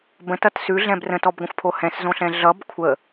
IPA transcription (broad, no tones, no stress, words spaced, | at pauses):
bə̃tʌt sʉɮɛ̃b rə̃tɔbɡʷə̃xʷpʰo hɛ̃szõɬɛ̃ ɮʌb kʷʰə